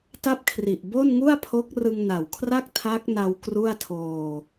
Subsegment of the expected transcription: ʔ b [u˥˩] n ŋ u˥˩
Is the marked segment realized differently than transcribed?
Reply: yes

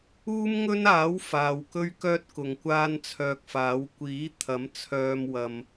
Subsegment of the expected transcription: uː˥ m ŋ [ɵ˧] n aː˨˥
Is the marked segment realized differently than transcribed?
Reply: yes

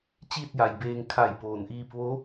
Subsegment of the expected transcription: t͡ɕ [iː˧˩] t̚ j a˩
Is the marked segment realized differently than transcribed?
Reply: yes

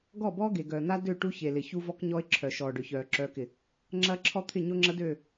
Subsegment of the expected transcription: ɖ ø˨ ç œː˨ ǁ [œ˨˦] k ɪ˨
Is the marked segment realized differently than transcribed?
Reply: no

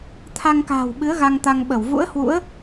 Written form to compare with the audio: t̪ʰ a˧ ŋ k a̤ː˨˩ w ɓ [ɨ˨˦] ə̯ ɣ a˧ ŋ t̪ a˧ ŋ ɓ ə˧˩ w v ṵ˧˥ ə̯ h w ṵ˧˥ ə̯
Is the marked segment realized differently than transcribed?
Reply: no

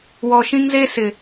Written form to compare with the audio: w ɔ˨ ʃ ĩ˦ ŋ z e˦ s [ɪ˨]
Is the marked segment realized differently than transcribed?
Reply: no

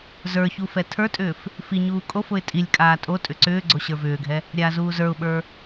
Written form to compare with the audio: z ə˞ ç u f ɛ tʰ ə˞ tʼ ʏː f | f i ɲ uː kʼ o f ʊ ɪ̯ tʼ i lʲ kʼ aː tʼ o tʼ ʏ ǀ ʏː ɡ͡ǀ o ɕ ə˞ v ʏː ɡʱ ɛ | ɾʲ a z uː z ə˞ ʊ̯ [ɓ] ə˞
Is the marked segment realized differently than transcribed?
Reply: no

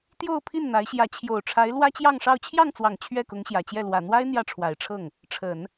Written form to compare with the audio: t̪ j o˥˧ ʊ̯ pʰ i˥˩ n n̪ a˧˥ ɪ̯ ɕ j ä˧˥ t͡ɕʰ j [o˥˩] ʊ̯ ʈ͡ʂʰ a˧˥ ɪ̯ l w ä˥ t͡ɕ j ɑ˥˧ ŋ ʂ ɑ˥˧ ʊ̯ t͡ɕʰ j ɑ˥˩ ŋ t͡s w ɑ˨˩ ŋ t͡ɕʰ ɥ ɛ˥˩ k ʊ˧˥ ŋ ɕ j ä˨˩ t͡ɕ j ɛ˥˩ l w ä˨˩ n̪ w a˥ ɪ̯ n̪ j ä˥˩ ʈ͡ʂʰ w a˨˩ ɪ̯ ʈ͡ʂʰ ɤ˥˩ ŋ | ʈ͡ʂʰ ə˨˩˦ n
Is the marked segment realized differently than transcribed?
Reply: yes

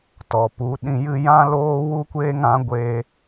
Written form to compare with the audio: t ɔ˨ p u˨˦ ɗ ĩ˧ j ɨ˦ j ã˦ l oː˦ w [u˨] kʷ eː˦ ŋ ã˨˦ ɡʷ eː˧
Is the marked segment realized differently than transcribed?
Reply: yes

